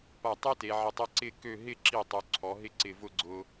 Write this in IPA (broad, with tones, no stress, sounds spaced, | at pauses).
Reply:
p a˧˩ tˤ y˥ t e˩˧ ʕ ɪ˧ tˤ e˥ ǀ ɪ˥˧ k ø˥˧ ɦ ɪ˥˧ ǁ i˧˩ tˤ y˩˧ ǀʰ ɔ˩˧ ɦ ɪ˥˧ ǀ ɪ˧˩ v ʊ˥˧ ɡ͡ǀ ʊ˧